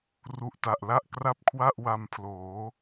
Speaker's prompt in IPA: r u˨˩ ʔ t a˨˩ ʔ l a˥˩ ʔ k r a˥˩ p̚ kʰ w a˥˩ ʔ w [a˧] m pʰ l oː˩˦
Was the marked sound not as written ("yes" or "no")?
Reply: no